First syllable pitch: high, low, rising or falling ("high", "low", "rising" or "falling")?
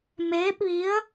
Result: rising